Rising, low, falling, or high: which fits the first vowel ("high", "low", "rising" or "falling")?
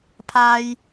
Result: low